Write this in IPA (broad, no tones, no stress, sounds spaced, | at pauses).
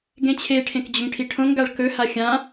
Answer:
ɡ ẽ t͡ɕʰ e ʈʰ ẽ k d͡ʑ ɵ ŋ ʈʰ i ʈʰ õ ŋ ɡ a ɭ k ɵ h a xʲ ã